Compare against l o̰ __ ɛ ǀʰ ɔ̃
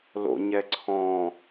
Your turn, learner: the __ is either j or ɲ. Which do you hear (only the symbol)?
ɲ